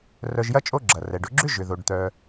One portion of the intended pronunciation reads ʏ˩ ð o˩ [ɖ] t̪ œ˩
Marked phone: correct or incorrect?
correct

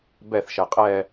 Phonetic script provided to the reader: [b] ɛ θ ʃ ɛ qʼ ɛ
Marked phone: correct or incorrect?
correct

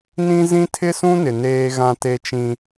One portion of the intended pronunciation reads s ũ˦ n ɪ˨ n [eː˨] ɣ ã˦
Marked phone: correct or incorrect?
incorrect: eː˦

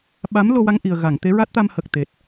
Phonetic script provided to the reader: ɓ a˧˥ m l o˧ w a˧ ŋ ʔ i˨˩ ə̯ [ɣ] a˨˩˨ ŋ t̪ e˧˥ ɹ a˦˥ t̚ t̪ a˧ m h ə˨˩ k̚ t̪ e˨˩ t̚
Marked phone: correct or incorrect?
correct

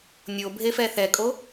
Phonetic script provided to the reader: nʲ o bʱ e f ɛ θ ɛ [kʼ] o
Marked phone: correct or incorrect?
correct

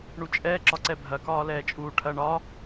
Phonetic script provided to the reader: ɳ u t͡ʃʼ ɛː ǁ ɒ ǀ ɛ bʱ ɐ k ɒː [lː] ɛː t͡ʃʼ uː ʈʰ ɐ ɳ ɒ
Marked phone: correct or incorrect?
incorrect: l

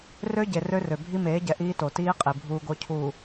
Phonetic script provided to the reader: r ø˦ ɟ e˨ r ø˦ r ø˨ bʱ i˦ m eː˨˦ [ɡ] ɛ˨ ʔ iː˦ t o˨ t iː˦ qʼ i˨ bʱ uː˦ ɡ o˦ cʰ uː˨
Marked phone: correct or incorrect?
incorrect: ɟ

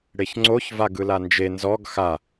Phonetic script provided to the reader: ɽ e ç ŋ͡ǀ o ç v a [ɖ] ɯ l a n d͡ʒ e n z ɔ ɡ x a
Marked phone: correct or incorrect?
incorrect: ɡ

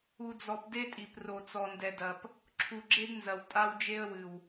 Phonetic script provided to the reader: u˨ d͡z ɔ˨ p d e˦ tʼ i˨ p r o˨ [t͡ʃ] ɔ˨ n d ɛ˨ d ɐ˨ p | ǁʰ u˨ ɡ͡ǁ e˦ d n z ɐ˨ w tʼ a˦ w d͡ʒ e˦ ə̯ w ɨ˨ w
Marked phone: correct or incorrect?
incorrect: t͡s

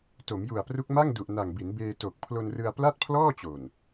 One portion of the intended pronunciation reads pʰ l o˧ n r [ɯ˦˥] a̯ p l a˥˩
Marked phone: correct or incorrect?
incorrect: ɯ˧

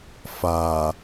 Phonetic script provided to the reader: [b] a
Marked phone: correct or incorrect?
incorrect: f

